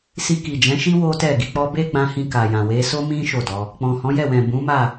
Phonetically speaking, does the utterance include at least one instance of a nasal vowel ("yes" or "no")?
yes